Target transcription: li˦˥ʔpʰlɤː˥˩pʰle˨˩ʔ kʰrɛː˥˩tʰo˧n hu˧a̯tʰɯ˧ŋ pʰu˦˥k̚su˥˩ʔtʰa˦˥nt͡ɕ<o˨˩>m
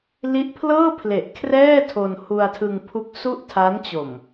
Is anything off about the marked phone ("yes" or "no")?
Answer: no